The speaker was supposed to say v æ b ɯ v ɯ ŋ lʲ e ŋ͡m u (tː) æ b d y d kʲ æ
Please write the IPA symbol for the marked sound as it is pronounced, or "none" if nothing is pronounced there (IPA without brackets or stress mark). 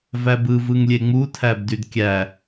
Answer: tʰ